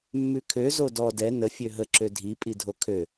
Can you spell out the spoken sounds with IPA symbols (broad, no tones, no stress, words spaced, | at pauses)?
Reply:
mːʉkʰø zodɔ dɛ nə fʲøɦə ǁødʱi pʼidʱokʰø